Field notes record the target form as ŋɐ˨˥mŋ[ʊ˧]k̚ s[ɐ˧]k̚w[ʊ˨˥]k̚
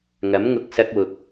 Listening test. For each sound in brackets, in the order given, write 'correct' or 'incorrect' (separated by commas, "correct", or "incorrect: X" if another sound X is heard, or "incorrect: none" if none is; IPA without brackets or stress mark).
correct, correct, incorrect: ʊ˨